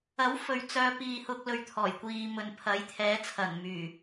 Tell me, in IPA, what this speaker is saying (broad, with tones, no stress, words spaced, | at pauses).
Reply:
ɐ˨˥wfɵ˨ɥ t͡sœː˨˧piː˨hʊ˧k̚lɵ˨ɥ t̪ʰɔː˨˩jkʷiː˨mɵ˨n pʰɐ˨˥jt̪ʰɛː˨˥t͡sʰɐ˨˩n myː˨˩